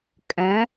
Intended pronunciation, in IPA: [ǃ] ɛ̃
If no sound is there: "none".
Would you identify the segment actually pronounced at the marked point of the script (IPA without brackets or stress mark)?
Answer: kʼ